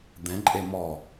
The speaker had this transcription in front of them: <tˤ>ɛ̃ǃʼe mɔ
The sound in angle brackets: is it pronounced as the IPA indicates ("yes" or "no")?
no